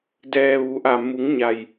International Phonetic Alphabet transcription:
d ɛː˩ ʋ u˩˧ ʔ a˧˩ m u˩˧ ŋ ɲ a˩ j

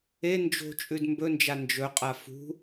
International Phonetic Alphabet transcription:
e n d͡ʒ o̤ t͡ʃʼ ʉ d m b ɵ n d͡ʒ a n d͡ʒ ɵ qʼ a f ṳ

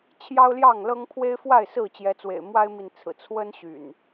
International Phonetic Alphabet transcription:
t͡ɕʰ j ɑ˦ ʊ̯ l j ɑ˥˨ ŋ l ɤ˦ ŋ pʰ w e˦ ɪ̯ f w a˥˨ ɪ̯ s ɹ̩˥˨ t͡ɕ j ɛ˨˦ t͡s w ḛ˨˩ ɪ̯ m w a˦ ɪ̯ m i˨ n t͡sʰ ɹ̩˨˩ t͡sʰ w ə˦ n ɕ y̰˨˩ n

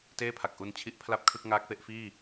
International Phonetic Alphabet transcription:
t eː˥˩ pʰ a˨˩ k̚ ʔ u˧ n t͡ɕʰ i˦˥ ʔ pʰ l a˥˩ p̚ kʰ ɯ˥˩ k̚ ŋ aː˦˥ k̚ f e˥˩ ʔ f iː˥˩

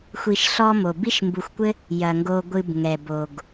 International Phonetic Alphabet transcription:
xʷ i˨ ʃ ɬ ɔ˦ m o˩ b i˥ ʃ m b u˨ xʷ kʷ ɘ˥ | j ɐ˩ ŋ ɡ o˨ ɡʷ ɨ˨ b ŋ ɛ˩ b o˩ ɡ

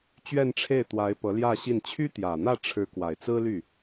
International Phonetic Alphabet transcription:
t͡ɕ ɥ ɛ˥˧ n ʈ͡ʂʰ e˥˩ ɪ̯ t̪ w a˧˥ ɪ̯ p ɤ˧˥ l j ä˥˧ ɕ i˥˩ n t͡ɕʰ y˥ t̪ j ä˨˩ n̪ ä˥˩ ʈ͡ʂʰ ɻ̩˧˥ k w a˨˩ ɪ̯ t͡s ɹ̩˥ l y˥˩

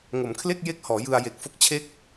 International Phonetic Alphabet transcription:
ŋ o˩˦ m kʰ l e˥˩ k̚ j e˥˩ k̚ h ɔː˩˦ j ɯ˧ a̯ j e˨˩ k̚ f o˥˩ k̚ t͡ɕʰ e˥˩ k̚

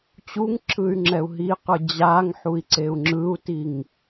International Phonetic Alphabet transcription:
t͡ɕ u ŋ ǁʰ ɯ y̯ ŋ͡ǁ ɛ u̯ ɦ i q ɯ d͡ʑ a ŋ ħ u i̯ ǀ e u̯ ŋ͡ǁ ɯ u̯ t i ŋ

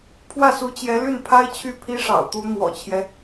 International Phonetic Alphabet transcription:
pʰ w ä˥˩ s u˧˥ t͡ɕ j ɛ˧˥ l y˥˩ n pʰ a˥ ɪ̯ t͡ɕʰ y˥˩ pʰ i˥ ʂ ɑ̰˨˩ ʊ̯ t̪ u˧˥ n̪ w ɔ̰˨˩ t͡ɕʰ j ɛ˦

